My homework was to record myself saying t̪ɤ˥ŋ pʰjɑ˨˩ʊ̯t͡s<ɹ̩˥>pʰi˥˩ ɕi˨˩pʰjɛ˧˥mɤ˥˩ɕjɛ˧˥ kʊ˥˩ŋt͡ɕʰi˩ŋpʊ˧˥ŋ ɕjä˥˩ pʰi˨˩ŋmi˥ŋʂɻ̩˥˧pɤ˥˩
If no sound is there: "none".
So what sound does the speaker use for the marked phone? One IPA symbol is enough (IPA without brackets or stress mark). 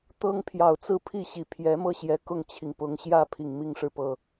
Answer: ɹ̩˥˧